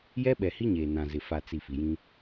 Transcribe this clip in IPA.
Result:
j ɛ˦ ɓ ɛ˨ h i˦ ɲ eː˨ n ã˨ z ɪ˨ f a˨ t͡s i˨ f i˨ j ĩ˦

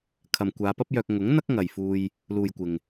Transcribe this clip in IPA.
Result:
kʰ ɐ˨ m kʷ aː˨˧ p ɐ˥ p̚ j œː˧ k̚ ŋ ʊ˨˥ ŋ n̪ ɐ˥ k̚ ŋ ɐ˨ j f uː˧ j | l uː˨ j kʷ ɪ˨ ŋ

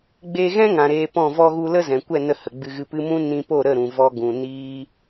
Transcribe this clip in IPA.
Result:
ɡ͡b e˧ ɣ ɛ̃˦ ŋ ã˨ ɾ eː˧ p ɔ̃˦˨ v ɔ˧ ɣ u˧ l ə˦ z ɛ̃˨ kʷ ɛ˦˨ n ə˧ h ə˨ ɡ͡b ɨ˧ ɣ ɨ˧ p ɨ˦ m ũ˦ n ĩ˧ p o˦˨ ɾ ə˦˨ ɾ ũ˨ v ɔ˧ ɡ ũ˨ n iː˦

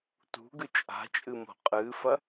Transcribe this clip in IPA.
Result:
t ṳ ɡ ʉ t͡ʃʼ a̤ t͡ʃʼ ɨ m o̤ qʼ ɨː f ɐ

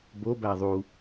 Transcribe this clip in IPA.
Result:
b o b æ ðˤ u

